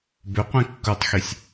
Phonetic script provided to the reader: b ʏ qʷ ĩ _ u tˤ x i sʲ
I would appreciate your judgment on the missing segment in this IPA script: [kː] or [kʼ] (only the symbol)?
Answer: kː